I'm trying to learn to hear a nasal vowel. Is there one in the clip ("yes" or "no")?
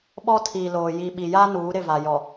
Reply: no